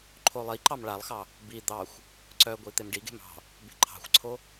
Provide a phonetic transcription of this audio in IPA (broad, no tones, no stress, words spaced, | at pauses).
ǃʰolˠiǃɑm ɭalˠxɑ | bi d̪ɑxʷ | ǀœɡʷi t̪emɖiɡe̤m ɑ̤ | be̤ǃʰɑ̤xʷǀʰo